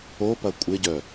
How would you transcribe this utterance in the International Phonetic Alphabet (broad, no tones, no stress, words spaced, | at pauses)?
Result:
opɐ kʷʼɪɟœ